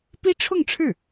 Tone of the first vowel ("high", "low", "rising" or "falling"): high